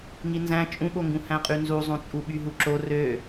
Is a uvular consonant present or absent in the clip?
present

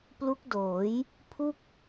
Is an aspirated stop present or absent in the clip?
present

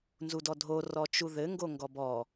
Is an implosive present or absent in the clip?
absent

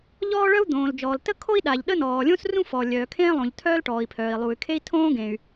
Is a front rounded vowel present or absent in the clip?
present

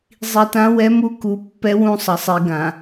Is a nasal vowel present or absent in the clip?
present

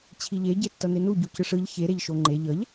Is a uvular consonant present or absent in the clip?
absent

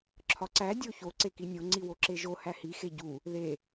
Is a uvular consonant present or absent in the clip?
absent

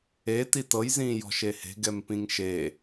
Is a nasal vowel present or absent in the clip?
present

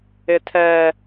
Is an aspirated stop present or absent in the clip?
present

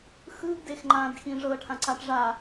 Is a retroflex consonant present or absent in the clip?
present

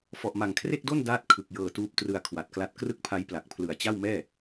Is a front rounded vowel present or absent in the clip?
absent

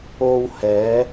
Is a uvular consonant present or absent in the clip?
absent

